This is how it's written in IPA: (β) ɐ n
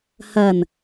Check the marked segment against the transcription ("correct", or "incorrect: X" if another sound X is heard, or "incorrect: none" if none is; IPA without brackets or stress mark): incorrect: h